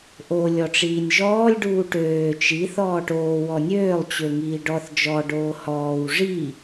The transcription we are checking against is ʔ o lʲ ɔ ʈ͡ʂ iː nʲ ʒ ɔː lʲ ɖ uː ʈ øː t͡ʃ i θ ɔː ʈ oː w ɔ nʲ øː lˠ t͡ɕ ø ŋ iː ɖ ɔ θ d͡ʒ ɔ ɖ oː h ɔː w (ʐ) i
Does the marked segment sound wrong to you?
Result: no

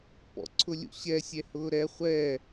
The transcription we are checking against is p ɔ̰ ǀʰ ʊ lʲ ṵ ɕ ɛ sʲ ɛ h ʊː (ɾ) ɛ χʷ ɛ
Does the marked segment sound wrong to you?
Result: no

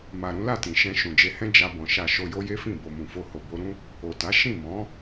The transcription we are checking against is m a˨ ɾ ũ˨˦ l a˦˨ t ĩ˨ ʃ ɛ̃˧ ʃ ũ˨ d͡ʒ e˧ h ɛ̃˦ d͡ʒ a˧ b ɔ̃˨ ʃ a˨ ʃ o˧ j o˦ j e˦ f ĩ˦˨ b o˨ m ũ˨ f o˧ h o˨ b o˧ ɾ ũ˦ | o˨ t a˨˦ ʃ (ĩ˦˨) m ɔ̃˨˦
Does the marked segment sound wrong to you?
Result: no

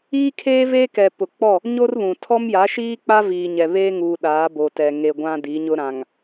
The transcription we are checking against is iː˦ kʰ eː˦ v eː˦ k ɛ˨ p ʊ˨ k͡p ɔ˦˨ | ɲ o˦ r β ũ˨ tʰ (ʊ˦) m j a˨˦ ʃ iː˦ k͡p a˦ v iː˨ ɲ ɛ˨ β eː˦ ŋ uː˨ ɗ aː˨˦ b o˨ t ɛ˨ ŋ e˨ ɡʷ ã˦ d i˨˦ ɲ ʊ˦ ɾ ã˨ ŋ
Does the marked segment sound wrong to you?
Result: yes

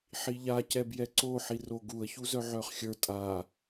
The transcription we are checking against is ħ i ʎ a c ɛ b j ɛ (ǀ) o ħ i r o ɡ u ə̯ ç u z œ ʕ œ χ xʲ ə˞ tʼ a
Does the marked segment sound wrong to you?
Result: no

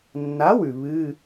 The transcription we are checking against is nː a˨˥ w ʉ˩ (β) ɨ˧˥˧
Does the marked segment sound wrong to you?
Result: no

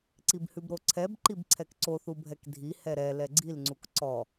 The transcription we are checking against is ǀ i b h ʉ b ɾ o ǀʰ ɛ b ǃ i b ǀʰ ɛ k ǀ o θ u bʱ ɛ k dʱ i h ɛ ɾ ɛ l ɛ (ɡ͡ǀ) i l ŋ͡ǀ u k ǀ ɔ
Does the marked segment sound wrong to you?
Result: no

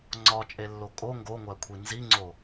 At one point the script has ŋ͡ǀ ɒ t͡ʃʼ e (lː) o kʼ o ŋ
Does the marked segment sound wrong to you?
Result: no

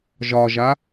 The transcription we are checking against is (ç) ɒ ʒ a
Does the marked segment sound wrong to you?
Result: yes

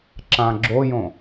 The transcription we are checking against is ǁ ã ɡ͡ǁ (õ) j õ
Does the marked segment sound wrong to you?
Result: yes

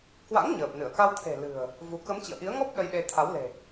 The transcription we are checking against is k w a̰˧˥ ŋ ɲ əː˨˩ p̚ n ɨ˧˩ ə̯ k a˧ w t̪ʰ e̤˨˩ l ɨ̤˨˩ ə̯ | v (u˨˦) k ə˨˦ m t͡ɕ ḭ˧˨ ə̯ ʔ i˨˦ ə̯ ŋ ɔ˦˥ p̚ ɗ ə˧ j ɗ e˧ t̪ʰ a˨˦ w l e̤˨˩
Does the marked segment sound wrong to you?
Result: no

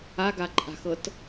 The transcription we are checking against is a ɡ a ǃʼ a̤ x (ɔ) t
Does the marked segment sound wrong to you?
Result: yes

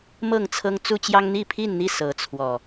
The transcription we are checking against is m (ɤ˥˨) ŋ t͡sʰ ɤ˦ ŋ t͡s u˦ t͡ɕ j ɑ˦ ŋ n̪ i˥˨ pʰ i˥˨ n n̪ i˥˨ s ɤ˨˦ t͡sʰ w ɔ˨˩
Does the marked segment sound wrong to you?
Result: no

